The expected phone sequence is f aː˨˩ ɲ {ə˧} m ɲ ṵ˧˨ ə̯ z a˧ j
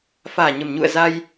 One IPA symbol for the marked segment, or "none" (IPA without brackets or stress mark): ə˨˩